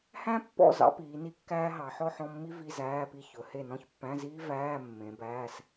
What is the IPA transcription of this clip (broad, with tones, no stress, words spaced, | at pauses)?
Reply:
hæ̃˥pːɔ̰˥˨ zɑ̰˥piː˨˦ni˥ kːæː˥ɦɑ˨˦ ħɔ˥ħɔ̃˧˥˧mːi˥ vi˧˥˧zæː˧˥˧pi˥˨ çɵ˨˦he˥˨ nɔ̃˥˨çpːæ̃˧˥˧ziː˥ væː˧˥˧ mːẽ˨˦bæː˧˥˧s